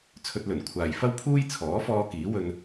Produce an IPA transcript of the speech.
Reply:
t͡sʰ ɵ˧ t̚ l ɵ˨˩ n kʷʰ aː˨ j f ɐ˥ w pʰ uː˥ j t͡sʰ ɔː˨˥ f ɔː˧ k iː˨˥ w ɵ˧ n

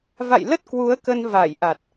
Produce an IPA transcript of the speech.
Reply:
v a̰˧˨ j l ə˦˥ t̚ k w u˨˦ ə̯ k ə˧ n v a˧˩ j ʔ a˨˩ t̚

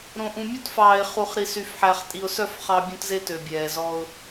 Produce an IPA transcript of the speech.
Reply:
ɾ õ˨ ʔ ũ˨ mʲ u˦ t f ɑː˨ ɪ̯ χ u˨ χ ɾ i˨ s y˨ f ħ æ˨ χ tʼ i˨ ʊ̯ s œ˦˨ f χ ɑ˦ bʲ õ˦ t z e˦ t ø˨ bʲ ɛː˨ z ɔ˦ ʊ̯

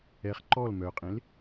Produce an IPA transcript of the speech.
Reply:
ɛ χ ǃ ɔ l m œ qʼ ẽ l

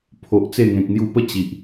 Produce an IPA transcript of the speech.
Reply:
pʰ o˨ ʔ t͡s e˥˧ ŋ ẽ˨ k̚ n̪ j u˧ p ə˥˧ t͡ɕ i˨ ʔ

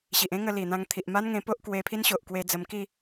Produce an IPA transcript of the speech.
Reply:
ɕ i˨ ʔ ẽ˦ ŋ ə˧ l i˨˩ n̪ ã˧ ŋ t̪ʰ i˨ ʔ m a˦ n ŋ ẽ˧ p o˦ ʔ k w e˧ pʰ i˦ n ɕ o˨ ʔ k w e˧ d͡z ə˧ m k i˥˧

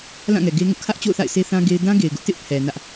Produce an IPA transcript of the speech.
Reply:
l ã˦˨ ŋ ɛ˨ ɡ e˦ ŋ ʊ˦ ʔ kʰ ä˦ ʔ t͡ɕ o̰˦˨ ʊ̯ θ a̰˦˨ ɪ̯ sʰ e˦ θ ã˦ ɡ e˦ ɪ̯ d ã˦ ɡ e˨ ɪ̯ ɡ ʊ˦ ʔ t ɪ˦ ʔ pʰ ɛ˨ n ä˦ ʔ

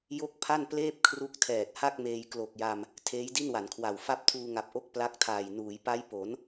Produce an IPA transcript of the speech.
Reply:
j o˥˩ k̚ pʰ a˥˩ n p l eː˥˩ p̚ kʰ r u˦˥ k̚ tʰ ɛː˨˩ t̚ h a˥˩ k̚ m eː˧ j k l o˨˩ k̚ j a˧ m | tʰ eː˦˥ j d i˥˩ n w a˩˦ n kʰ w a˨˩ w f a˦˥ p̚ tʰ uː˧ ŋ a˨˩ p̚ ʔ o˦˥ k̚ p l a˦˥ k̚ tʰ aː˨˩ j n uː˩˦ j p a˦˥ j p o˩˦ n

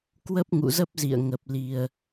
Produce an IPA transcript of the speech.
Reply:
k w ə˦˥ p̚ ŋ ṵ˧˨ z ə˦˥ p̚ z ḭ˧˨ ə̯ ŋ ə˨˩ p̚ l i˨˩ ə̯

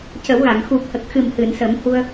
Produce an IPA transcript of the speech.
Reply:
c ə˨˩˦ w ɣ a˨˩˨ ŋ x u˨˩ p̚ h ə˨˩ k̚ x ɨ˨˩ m h ɨ˨˩˨ n s ə˨˩˦ m h u˧ ə̯

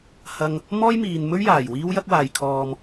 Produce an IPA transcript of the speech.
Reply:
h ɐ˧ ŋ | m ɔː˥ j m iː˨ n m ɵ˥ ɥ j aː˨˩ j w iː˥ w j ɐ˥ k̚ w aː˨ j kʰ ɔː˧ m

